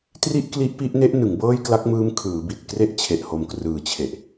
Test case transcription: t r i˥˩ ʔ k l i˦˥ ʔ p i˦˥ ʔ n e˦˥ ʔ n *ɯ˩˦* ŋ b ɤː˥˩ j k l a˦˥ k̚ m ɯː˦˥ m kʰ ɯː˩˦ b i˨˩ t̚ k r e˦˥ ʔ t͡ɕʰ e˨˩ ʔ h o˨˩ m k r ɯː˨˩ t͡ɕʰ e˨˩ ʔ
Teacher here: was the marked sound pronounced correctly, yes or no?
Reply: yes